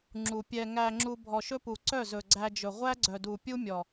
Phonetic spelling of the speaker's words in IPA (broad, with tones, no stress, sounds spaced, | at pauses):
ŋ͡ǁ u˨ pʲ ɛ˧ ŋ æ˧ ŋ͡ǁ u˧ bʱ ɔ˨ ʃ ɵ˦ p u˨ ǀ œ˦˨ z ɵ˨ ɡ͡ǀ æ˧ d͡ʒ ɵ˨ ʁʷ æ˦ ɡ͡ǀ œ˨ d u˨ pʲ u˦ mʲ ɔ˨